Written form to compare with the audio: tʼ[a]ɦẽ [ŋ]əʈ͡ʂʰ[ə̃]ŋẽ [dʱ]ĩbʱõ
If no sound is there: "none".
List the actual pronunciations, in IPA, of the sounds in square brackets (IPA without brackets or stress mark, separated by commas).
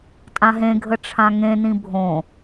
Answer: ã, ɡʱ, ã, n